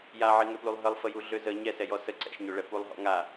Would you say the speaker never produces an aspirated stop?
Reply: yes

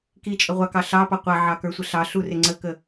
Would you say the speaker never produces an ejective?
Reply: no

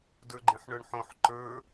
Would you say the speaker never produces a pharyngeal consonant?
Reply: no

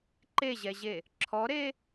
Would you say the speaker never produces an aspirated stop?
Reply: no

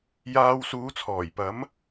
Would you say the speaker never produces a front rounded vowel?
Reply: yes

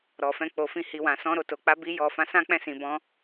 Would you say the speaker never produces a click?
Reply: yes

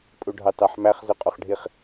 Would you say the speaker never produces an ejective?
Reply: no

